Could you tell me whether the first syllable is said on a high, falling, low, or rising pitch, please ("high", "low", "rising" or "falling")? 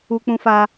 high